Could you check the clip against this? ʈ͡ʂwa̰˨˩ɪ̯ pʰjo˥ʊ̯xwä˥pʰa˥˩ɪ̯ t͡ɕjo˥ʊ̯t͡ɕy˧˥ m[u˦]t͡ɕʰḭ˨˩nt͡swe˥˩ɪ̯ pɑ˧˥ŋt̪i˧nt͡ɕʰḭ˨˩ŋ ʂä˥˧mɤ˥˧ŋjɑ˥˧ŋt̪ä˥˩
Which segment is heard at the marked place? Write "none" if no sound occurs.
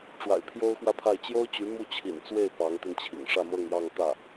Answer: u˥˩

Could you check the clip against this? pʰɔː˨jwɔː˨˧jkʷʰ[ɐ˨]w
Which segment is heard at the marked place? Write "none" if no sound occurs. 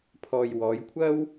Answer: ɐ˥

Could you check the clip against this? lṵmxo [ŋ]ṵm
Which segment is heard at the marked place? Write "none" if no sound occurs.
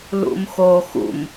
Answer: x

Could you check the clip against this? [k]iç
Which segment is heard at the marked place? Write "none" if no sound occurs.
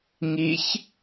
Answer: ŋ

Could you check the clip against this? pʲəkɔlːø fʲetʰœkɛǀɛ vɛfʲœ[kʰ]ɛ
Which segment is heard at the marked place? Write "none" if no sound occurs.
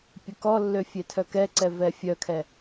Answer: kʰ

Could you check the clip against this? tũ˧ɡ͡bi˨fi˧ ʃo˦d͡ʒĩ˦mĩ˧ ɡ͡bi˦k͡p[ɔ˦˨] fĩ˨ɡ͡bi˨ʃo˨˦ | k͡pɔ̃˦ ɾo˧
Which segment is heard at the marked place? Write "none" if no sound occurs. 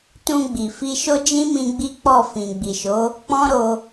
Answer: ɔ˦˨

